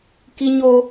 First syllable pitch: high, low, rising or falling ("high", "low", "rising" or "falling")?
high